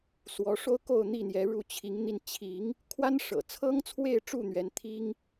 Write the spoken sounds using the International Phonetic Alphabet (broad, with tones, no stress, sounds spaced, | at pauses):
s w ɔ˨˦ ʂ o˦ ʊ̯ k o˥˨ ʊ̯ n̪ i˥˨ n̪ j ɛ˨˦ ɻ u˥˨ t͡ɕʰ i˨˦ ŋ n̪ i˧ n t͡ɕʰ i˨˦ ŋ | kʰ w a˦ n ʂ ɤ̰˨˩ t͡sʰ ɤ˦ ŋ t͡sʰ w e˥˨ ɪ̯ ʈ͡ʂ u˥˨ n̪ ɥ ɛ˨˦ n t̪ʰ i˦ ŋ